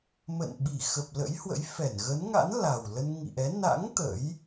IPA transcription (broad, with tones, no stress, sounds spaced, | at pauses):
m ə̰˧˨ n ɓ i˧˩ x ə˨˩ p̚ l ə̰˧˥ j h w ə̰˧˥ j f ɛ˧˩ n ɣ ə˨˦ n ŋ a̰˧˥ n l a˨˩ w l ə˧ n ŋ ḭ˧˨ ʔ ɛ˨˦ n a̰˧˥ ŋ t̪ ə̰˧˥ j